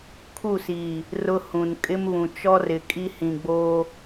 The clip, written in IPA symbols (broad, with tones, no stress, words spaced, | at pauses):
kʰu˦˨si˨ | rʊ˦hũ˨n kʼɪ˦mβũ˨ t͡ʃɔ˦rɪ˨ kʼi˦hĩ˨ɡ͡bo˦